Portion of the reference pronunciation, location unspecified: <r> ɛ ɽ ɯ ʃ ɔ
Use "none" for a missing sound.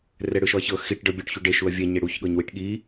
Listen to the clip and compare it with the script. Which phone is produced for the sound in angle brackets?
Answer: r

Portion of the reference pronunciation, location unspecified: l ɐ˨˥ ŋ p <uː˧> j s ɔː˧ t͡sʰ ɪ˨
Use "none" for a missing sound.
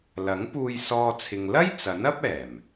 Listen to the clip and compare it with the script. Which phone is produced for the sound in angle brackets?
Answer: uː˧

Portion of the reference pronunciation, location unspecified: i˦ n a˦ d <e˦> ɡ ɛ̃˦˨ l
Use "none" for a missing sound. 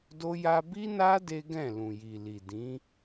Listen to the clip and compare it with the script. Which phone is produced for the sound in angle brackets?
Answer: e˦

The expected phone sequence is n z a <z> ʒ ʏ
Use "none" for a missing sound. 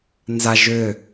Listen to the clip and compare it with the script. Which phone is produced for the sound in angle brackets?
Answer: none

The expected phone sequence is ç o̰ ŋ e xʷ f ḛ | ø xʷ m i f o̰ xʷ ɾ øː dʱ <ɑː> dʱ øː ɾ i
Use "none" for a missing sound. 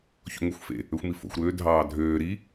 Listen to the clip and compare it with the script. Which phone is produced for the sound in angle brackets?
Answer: ɑː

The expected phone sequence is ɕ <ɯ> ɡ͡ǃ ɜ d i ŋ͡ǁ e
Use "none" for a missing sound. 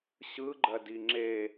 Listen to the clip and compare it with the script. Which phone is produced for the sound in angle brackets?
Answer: ɯ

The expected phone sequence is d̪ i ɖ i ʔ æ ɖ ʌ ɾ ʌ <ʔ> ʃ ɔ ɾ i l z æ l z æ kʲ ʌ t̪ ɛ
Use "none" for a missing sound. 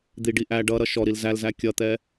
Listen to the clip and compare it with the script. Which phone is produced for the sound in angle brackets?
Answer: none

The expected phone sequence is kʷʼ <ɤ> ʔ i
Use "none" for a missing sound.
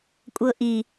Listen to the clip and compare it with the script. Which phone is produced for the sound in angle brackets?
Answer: ɤ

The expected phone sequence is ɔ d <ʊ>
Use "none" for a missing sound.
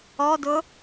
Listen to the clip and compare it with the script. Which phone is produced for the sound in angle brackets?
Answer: ʊ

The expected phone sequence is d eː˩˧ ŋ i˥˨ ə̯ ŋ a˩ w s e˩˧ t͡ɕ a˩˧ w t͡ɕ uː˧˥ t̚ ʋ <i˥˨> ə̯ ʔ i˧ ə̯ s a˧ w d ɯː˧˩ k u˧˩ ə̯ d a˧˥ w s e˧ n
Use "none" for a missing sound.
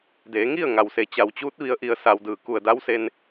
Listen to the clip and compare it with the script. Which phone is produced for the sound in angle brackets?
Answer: i˧˥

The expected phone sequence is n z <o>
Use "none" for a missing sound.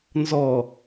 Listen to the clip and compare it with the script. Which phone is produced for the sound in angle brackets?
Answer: ɔ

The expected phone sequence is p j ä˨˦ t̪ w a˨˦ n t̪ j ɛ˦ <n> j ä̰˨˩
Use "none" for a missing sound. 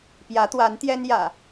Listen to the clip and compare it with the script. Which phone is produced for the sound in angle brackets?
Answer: n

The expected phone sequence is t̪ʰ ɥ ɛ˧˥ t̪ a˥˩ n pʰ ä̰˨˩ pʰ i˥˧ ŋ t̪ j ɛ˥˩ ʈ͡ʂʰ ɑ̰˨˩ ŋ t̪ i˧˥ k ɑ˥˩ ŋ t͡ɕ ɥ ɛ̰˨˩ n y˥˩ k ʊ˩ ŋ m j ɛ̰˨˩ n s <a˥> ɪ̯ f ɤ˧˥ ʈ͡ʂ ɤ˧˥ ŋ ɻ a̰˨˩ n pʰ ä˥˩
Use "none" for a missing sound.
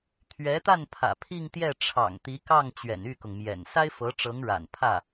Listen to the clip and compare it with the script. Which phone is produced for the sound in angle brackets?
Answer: a˥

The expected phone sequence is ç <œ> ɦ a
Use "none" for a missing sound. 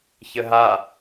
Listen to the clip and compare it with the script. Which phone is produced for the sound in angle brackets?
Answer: ə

